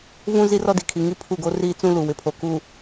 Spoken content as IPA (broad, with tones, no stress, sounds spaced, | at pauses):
v ũ˦ z i˦ r ɔ˦ d i˨ kʰ i˨ ŋ i˦ pʰ u˦˨ ɡ o˦ r iː˦ t͡s ũ˦ l u˨ w ɪ˨ pʰ o˨ k uː˨